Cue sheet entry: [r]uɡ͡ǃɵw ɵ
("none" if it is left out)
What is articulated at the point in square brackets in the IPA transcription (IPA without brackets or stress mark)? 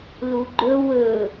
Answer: l